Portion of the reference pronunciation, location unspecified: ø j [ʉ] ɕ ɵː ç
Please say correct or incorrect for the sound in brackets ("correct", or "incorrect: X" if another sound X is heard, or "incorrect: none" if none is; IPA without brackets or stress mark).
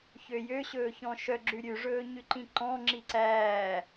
incorrect: ø